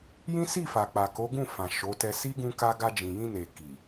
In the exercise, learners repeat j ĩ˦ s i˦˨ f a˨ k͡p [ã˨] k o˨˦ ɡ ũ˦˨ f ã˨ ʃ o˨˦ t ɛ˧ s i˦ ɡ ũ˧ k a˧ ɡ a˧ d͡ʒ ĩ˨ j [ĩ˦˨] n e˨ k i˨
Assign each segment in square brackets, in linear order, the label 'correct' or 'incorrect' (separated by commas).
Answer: incorrect, incorrect